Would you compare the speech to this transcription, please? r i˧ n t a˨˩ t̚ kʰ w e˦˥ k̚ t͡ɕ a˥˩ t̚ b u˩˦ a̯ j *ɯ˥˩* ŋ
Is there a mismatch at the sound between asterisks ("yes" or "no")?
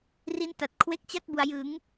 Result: yes